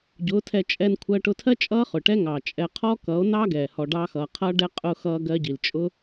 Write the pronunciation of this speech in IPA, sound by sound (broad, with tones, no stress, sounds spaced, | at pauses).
ɟ ʊː˨˦ tʰ ɛ˧ t͡ʃʼ ɛ˧ n kʷʰ ɜ˧ ʈ ʊ˧ tʰ ɜ˦ t͡ʃʼ ʌː˦ χ ʊ˨ ʈ ɛ˦ ŋ ɑ˨ t͡ʃʼ ɛ˨ qʰ ɔ˦ k ʌ˨˦ o̯ n ɑ˦ ɡ ɛː˨ h ɔ˨ ɖ ɑ˧ x ʌː˨ qʰ ʌː˦ ɖ ɛ˦ qʼ ʊː˧ x ʌː˧ ɡ ɜ˧ ɟ i˨ l t͡ʃʼ ʊ˦